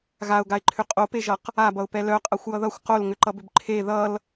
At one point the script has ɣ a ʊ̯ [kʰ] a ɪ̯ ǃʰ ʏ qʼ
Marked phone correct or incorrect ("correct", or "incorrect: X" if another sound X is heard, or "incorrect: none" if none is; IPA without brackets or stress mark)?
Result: incorrect: ɡ